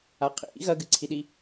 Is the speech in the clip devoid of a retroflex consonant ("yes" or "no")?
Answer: yes